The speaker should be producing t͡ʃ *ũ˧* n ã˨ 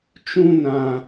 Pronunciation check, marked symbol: correct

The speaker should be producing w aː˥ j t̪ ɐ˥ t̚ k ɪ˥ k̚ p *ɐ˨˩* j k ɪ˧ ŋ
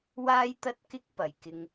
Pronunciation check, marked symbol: correct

